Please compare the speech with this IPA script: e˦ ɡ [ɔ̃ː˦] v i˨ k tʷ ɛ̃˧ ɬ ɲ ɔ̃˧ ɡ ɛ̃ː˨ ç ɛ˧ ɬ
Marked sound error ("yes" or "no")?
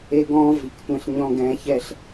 no